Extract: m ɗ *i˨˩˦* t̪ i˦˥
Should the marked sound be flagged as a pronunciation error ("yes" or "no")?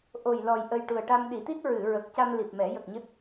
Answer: no